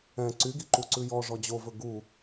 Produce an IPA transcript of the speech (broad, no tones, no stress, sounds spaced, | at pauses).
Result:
ɛ̃ ǀ y ɡ i ǃ u ǀ ʉ j ɔ ʐ ɔ d͡ʑ o v ɵ ɡ u